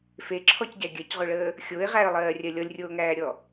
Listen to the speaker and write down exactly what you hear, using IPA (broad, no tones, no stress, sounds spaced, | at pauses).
f e ǁʰ ɔ c ɟ æ ɡʲ ɜ c ʁ o ɭ əː | xʲ o ɪ̯ ʁ æ ə̯ lˠ ɜː rʲ ɜ lʲ ɔ lʲ rʲ oː ŋ æː ɾʲ ɔ